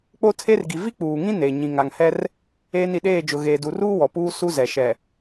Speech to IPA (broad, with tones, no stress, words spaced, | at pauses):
k͡po˦tʰe˦rɡi˨ vi˦k͡puː˨ŋĩ˦ ne˨ ɲĩ˨ŋa˨ŋhɛ˦r | eː˦n i˨ɗeː˦˨d͡ʒʊ˨ ɣeː˨du˨ruː˦ wɔ˨puː˦ su˦zɛ˨ ʃɛ˨